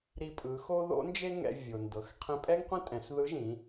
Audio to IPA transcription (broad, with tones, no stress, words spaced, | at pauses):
ɾi˧pʼɯ˩˧xo˥ ðo̰˧˥nd͡ʒe˥ŋɛ̰˧ vʲo˩ndɤ˩˧x qʰẽ˧pʼɛ˥ŋqʷẽ˥tʼɛ̃˩˧s ðɯ˧˥ ʒĩ˩˧